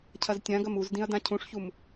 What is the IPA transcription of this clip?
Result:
cʰ ɐ z tʲ ã ɡ ɐ m u z d ĩ ɐ̯ d ã cʰ ũ ʂ ç u m

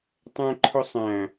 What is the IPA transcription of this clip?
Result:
tˤ æ̃ ǃʰ ʊ sˤ æ̃

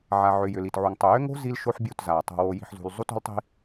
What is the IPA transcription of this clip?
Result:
ʕ a˨ ʕ ʏ˨ j ʏ˨ l i˨ t ʕ u˨ ŋ tˤ ʏ˨ j ʏ˦ ŋ o̤˦ z i˦ l ʃ o˦ ħ bʲ u˦˨ t z a˨ tˤ o̤˨ w o˨ j i̤˨ ħ z ṳ˨ l zˤ u˦ t o̤˦ l tˤ i̤˦

